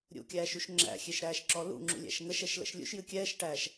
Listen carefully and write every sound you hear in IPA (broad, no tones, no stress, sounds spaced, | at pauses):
ɾʲ ṵ kʲ æː ʃ u ʃ ŋ͡ǁ æ̰ xʲ e ʃ ɾ æː ʃ ǁ ɔ l ṵ ŋ͡ǁ ṵ lʲ æ̰ ʃ ŋ ə ʃ ɛ ʃ l ə̰ ʃ lʲ ṵ ʃ j ɨ kʲ ɛː ʃ ʈ æː ʃ